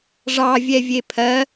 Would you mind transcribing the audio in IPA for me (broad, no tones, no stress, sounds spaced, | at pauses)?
ʐ ɑ vʲ ɛ vʲ e pʰ ɜ